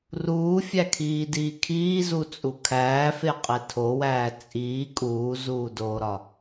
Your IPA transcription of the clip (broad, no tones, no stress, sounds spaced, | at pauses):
r uː fʲ æ kʰ iː d iː kʰ iː z u t͡sʼ u kʰ æː f e qʼ e tʰ o w æː t͡sʼ iː kʼ uː z uː d oː ɾ ɒ